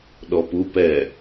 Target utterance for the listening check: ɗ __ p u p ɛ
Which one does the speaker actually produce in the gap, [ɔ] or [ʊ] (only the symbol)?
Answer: ɔ